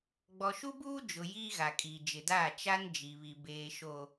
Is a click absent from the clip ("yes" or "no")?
yes